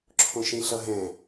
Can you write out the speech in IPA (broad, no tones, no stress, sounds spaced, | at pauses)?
ǁʰ õ ʃ ĩ ɬ ʌ ɦ ɛ̃